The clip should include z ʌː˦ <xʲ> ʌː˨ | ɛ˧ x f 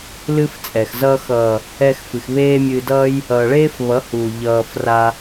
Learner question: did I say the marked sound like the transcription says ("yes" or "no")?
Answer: no